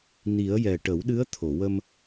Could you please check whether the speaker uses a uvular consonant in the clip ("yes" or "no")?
no